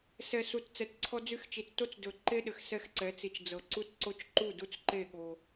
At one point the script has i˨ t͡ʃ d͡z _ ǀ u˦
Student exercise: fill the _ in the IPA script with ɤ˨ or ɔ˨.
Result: ɤ˨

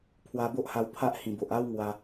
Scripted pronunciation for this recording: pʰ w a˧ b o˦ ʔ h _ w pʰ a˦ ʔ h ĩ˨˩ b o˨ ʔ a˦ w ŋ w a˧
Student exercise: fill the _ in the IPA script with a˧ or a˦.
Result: a˧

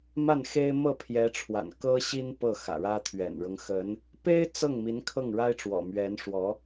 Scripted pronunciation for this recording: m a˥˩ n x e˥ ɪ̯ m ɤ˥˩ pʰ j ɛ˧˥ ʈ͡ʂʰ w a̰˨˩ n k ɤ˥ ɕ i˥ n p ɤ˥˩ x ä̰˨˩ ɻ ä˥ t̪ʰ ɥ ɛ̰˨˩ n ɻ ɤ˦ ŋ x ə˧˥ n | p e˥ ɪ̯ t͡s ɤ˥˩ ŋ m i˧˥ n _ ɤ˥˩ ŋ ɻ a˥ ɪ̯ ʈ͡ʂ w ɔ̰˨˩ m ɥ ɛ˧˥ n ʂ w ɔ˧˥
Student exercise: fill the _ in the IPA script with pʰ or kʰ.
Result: kʰ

